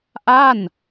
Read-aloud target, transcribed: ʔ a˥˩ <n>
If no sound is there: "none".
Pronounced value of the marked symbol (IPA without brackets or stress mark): n